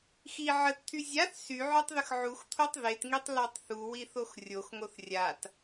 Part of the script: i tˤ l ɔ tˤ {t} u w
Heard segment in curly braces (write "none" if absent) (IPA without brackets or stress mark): θ